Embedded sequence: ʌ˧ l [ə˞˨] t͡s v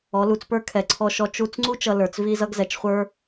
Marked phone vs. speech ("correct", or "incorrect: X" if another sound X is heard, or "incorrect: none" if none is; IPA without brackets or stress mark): correct